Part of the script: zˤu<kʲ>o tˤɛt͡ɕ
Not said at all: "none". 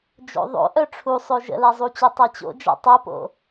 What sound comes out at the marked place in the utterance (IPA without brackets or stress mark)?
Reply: t͡ɕ